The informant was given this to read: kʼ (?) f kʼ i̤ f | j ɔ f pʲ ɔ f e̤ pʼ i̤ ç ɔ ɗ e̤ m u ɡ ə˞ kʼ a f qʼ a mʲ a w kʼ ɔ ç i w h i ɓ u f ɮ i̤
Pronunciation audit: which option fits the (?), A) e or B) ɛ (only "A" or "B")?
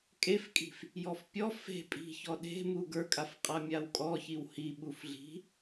A